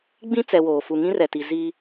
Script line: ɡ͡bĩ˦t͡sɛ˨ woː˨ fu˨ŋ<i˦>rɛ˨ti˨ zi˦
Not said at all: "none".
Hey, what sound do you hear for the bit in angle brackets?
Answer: ĩ˦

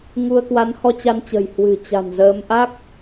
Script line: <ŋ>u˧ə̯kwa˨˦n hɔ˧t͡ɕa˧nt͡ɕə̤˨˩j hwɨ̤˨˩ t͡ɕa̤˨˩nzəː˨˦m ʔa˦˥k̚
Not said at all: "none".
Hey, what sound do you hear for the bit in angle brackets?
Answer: ŋ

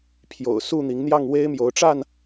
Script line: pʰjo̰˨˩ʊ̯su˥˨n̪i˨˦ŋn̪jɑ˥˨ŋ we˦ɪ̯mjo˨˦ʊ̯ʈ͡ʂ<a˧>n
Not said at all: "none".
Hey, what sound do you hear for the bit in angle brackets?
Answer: a˥˨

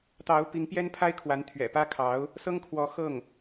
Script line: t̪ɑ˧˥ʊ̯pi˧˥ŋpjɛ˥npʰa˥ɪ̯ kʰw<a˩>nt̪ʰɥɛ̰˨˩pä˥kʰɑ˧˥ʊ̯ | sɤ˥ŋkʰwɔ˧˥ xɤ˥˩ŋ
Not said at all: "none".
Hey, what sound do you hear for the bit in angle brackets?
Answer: a˧˥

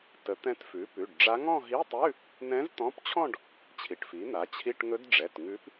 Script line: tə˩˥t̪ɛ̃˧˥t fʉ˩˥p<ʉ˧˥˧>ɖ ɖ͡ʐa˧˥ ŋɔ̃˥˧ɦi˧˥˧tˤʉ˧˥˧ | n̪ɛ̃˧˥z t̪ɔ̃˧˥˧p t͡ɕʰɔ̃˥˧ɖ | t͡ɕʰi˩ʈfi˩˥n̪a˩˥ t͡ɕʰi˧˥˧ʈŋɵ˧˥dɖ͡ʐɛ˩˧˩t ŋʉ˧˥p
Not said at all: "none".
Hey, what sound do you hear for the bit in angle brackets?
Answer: ʉ˩˧˩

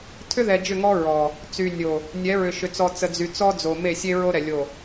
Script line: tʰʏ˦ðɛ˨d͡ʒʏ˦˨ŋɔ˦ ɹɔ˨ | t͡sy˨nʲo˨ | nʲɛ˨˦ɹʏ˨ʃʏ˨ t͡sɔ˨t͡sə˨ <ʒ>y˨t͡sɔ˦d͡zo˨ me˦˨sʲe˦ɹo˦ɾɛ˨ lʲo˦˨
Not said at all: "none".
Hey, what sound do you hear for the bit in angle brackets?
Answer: d͡z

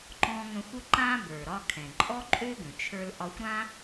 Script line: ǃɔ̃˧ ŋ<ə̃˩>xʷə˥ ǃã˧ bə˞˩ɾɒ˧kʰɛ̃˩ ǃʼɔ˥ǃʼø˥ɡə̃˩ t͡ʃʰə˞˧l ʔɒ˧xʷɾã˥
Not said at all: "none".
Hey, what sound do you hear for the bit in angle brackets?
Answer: ə̃˧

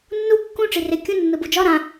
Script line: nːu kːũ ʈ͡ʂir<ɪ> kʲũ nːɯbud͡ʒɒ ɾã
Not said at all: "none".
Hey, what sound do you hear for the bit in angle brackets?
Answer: ɪ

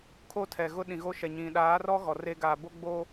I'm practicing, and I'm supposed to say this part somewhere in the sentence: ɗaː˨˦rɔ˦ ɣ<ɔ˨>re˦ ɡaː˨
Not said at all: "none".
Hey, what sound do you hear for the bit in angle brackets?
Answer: ɔ˨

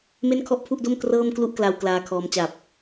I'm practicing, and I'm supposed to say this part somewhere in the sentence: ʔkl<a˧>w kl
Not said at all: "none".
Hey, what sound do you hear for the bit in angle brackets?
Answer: a˧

